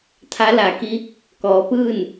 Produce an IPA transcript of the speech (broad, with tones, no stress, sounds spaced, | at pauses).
t̪ʰ a˧˥ l a˩˧ k i˧˥ | k ɔː˩˧ p ɯː˥˨ n